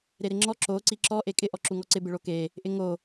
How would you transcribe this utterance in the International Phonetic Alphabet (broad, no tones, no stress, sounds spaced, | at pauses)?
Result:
ɾ e ɾ ɪ ŋ͡ǁ ɔ ǁ o ǀ i ǁ ɔ ʔ e kʼ ɪ ʔ ɔ ǁ u ŋ ɔ ǀ ɪ b ɪ ɭ o k e | ʔ ɪ ŋ o